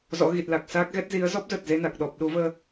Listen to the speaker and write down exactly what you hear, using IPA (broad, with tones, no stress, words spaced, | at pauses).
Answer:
zɔ̰˧˥ɣi˨˩t̚la˨˩k̚saː˦˥k̚ ɣɛ˦˥t̚zi˨˦ə̯ zɔ˦˥p̚zə˨˩t̚ ze˧na˨˩k̚ɗɔ˨˩p̚ ɗu˨˦ vəː˧